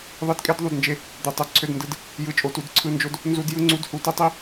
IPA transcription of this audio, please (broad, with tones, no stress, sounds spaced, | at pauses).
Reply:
ðˤ i˧˥˧ d kʼ e˦˥ d ðˤ u˧˥˧ d n d͡ʒ e˦˥ | d̪ e˧˥˧ tˤ e˦˥ ǀʰ ø˧˥˧ d n d ɯ˧˥˧ d | j ɯ˦˥ t͡ʃʼ o˦˥ t u˧˥˧ d ǀʰ ɯ˧˥˧ n d͡ʒ o˦˥ d | n z u˦˥ d j ɯ˦˥ ŋ͡ǀ u˧˥˧ d h u˧˥˧ t i˦˥ tˤ i˦˥